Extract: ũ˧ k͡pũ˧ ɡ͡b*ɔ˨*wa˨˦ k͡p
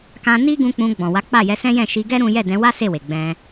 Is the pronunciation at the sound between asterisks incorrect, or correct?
incorrect: ɔ̃˨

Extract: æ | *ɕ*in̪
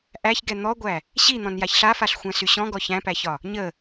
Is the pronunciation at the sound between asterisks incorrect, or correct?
correct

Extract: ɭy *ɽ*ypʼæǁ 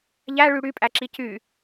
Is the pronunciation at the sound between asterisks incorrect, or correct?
correct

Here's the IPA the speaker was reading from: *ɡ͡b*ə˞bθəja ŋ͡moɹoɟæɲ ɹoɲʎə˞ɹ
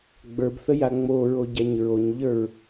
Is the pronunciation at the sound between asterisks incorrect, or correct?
correct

